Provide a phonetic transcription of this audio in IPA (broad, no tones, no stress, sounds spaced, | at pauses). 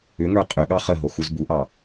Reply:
ʏ ŋ ə˞ qʼ ʏ ɠ ɑ χ ə ɦ o x u z b u ʔ ɑ